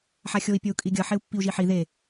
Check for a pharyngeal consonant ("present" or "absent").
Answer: present